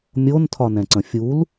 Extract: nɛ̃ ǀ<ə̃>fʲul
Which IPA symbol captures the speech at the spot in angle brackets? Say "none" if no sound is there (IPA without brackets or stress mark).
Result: ə̃